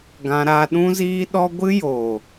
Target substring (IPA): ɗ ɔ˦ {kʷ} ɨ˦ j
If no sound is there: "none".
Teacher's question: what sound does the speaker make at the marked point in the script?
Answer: ɡʷ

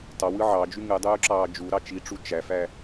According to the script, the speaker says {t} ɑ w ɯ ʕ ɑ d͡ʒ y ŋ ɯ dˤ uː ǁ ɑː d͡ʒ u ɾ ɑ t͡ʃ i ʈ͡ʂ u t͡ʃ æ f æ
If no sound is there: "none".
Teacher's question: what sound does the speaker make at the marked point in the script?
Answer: t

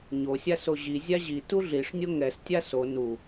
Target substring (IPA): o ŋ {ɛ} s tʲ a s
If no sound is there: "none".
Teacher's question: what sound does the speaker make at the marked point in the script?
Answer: ɛ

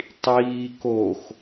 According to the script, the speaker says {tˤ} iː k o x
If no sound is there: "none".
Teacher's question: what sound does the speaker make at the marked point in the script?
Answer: tˤ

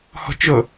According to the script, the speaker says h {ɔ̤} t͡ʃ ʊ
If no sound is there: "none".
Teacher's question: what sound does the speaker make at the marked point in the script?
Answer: ɔ̤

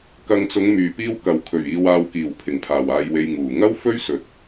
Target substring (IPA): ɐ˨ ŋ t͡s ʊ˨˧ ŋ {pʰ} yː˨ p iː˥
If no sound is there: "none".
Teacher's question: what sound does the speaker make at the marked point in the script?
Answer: m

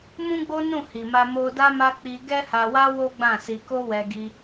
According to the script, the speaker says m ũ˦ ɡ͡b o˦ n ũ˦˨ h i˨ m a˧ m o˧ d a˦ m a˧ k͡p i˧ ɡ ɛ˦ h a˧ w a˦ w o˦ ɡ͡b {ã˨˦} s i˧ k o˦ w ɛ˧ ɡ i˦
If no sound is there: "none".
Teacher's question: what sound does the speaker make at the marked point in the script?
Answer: ã˦˨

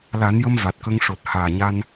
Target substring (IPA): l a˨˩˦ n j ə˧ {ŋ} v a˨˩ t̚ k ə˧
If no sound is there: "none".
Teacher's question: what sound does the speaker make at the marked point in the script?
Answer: m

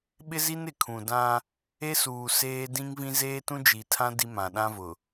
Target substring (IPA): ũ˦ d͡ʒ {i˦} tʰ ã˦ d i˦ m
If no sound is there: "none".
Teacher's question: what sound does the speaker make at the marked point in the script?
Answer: i˨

